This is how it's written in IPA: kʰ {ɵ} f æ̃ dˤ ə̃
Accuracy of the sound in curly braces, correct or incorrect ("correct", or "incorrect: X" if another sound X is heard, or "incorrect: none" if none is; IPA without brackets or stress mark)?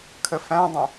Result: incorrect: ə